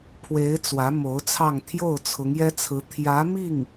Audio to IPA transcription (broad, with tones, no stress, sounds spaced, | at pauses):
pʰ w e˧˥ ɪ̯ t͡s w ä˧˥ m o˧˥ ʊ̯ t͡sʰ ɑ˥˧ ŋ t̪ʰ j o˥˩ ʊ̯ t͡sʰ ʊ˧˥ ŋ j ɛ˥ t͡sʰ ɹ̩˧˥ t̪ʰ j ä˧˥ m i˥˩ ŋ